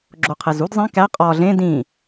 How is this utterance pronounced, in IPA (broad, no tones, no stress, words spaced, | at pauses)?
ɡ͡ǁoqʰezud zˤĩ kæ qʼɒ ɮẽ dĩ